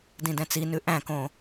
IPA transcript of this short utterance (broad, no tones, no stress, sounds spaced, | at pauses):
d ĩ d ɛ̃ t͡s i n ʉ ʔ æ̃ k õ